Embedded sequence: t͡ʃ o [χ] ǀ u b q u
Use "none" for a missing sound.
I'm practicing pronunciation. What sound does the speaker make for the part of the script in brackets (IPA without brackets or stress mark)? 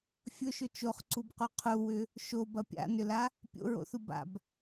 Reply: χ